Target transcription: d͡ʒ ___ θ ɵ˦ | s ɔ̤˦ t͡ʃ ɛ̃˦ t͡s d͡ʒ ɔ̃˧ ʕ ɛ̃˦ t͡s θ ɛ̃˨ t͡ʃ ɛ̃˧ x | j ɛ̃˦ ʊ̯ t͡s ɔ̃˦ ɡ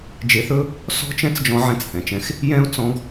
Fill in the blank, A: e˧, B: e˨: A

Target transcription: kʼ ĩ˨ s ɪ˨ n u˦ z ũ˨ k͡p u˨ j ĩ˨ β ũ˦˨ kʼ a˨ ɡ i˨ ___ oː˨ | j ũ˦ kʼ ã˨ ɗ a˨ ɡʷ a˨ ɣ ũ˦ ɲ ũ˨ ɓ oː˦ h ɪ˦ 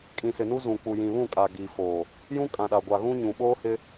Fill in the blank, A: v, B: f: B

